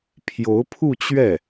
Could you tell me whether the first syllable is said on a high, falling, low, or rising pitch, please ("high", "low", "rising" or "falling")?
rising